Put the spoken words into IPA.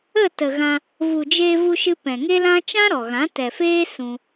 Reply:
ə˦˨ t ə˨ ɣ ã˧ | v u˨ d͡ʒ eː˧ v u˧ ʃ ɨ˧ p ɛ̃˨ ŋ e˦ l ã˦ t͡ʃ ã˦ ɾ ɔ˨ ɣ ã˨˦ t ɛ˨ f eː˦ s ũ˧

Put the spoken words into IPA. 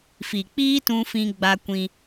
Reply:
f i˨ k͡p iː˦ t ũ˦ f ĩ˦ ɡ͡b a˦ kʷ ĩ˦

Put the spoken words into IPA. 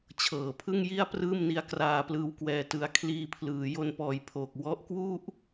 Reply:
t͡ɕʰ ɤː˨˩ pʰ ɯ˥˩ ŋ j i˥˩ a̯ p r ɯː˥˩ m n i˦˥ a̯ k r aː˧ p l ɯː˧ w k w ɛː˧ t ɯ˧ a̯ kʰ l iː˧ pʰ l ɯː˩˦ j o˧ n p ɔː˨˩ j pʰ oː˨˩ k̚ w ɔ˦˥ ʔ k w u˥˩ ʔ

